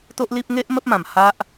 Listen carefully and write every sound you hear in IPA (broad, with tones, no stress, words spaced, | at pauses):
t̪o˦ʔli˦p̚ ŋe˦ʔ mə˦p̚mã˨˩m ha˦ʔ